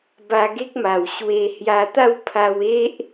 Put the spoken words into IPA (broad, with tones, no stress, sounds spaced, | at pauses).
b a˧ ɡ e˦ k̚ m a˨˩ w ɕ w e˧ h j a˧ t̪ a˥˧ w pʰ a˧ w e˦ ʔ